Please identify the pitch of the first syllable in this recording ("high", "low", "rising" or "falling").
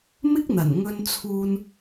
high